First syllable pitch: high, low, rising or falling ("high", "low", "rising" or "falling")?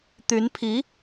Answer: rising